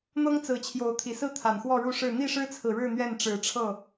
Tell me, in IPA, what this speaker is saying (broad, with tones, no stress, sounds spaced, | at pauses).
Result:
n̪ ɤ˦ ŋ t͡s ɹ̩˨˦ t͡ɕʰ j o˨˦ ʊ̯ t̪ʰ i˨˩ s ɹ̩˥˨ t̪ʰ a˨˩ n x w ɔ˥˨ ɻ u˥˨ ʂ ɻ̩˥˨ n̪ i˥˨ ʂ ɻ̩˦ t͡sʰ ɹ̩˨ ɻ ɻ̩˥˨ n̪ ɥ ɛ˥˨ n ʈ͡ʂ ɻ̩˨˦ ʈ͡ʂʰ ɤ˥˨